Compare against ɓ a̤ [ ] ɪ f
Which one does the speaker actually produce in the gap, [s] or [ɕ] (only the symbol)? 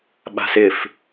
s